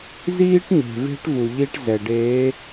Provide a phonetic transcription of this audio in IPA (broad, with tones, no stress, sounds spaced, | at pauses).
z iː˦ ʈ ɲ e̤˨ v e̤˦ ʈ v u˨ ʎ i˦ ʈ z ɛ˨ ɖ eː˨˦